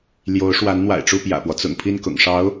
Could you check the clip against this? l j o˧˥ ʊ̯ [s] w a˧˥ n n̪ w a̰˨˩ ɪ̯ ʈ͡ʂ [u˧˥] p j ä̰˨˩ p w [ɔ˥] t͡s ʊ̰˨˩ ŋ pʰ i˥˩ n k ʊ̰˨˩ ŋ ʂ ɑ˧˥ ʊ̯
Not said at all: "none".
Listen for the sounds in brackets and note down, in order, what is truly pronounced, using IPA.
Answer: ʂ, u˥˩, ɔ˦

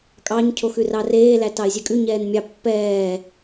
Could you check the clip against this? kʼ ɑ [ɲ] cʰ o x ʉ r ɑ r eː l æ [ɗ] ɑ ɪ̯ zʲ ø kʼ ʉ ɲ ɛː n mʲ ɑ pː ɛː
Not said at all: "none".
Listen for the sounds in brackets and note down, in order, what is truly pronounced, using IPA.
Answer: ɲ, t

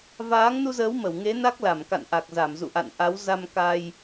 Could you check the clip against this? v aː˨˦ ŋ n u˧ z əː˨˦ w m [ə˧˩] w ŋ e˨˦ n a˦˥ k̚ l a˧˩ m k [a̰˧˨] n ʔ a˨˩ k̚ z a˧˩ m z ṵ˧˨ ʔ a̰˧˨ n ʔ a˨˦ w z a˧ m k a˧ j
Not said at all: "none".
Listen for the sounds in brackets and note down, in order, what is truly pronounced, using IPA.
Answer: ə˧˩, a̰˧˨

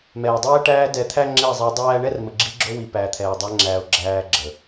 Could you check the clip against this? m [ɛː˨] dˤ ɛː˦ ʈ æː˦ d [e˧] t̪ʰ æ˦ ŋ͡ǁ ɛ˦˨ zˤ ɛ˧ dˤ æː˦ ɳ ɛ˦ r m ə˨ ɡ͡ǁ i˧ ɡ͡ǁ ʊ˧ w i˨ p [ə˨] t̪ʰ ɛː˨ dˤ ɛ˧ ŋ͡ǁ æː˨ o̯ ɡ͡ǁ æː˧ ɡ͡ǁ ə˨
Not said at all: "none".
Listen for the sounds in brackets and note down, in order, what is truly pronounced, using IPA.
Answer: ɛː˨, ɛ˧, æ˨

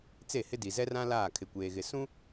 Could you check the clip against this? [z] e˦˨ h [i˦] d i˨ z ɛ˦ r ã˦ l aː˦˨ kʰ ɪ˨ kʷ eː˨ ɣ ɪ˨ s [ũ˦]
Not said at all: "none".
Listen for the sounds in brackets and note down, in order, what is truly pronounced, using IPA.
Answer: t͡s, ɪ˦, ũ˦

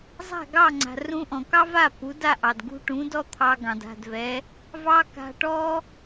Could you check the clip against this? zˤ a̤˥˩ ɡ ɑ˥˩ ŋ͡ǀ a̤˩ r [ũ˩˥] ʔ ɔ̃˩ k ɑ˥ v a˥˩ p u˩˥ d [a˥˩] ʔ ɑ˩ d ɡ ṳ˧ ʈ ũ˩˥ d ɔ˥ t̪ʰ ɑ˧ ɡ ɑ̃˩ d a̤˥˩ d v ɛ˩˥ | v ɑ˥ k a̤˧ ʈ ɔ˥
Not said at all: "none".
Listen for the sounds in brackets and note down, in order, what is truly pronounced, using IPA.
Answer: ũ˧, a˥˩

